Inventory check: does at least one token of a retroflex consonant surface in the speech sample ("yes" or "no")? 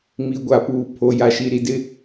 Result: no